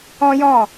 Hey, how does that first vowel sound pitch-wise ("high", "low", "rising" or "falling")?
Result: high